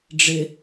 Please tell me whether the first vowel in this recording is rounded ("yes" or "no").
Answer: no